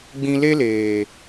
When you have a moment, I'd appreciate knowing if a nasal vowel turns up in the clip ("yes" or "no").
yes